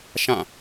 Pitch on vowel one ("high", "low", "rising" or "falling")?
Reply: falling